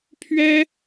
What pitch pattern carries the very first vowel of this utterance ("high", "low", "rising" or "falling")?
high